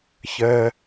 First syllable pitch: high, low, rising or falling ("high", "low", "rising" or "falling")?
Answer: high